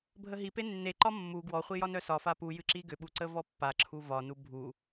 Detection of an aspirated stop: present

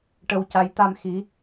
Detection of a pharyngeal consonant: absent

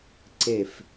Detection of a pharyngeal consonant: absent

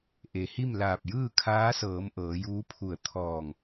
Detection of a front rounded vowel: absent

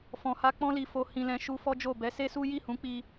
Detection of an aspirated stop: absent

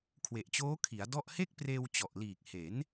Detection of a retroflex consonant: absent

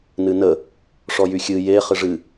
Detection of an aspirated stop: absent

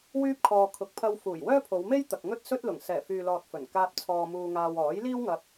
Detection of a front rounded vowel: present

